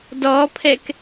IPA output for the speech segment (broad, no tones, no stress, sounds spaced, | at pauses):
d ɔ pʰ ɛ k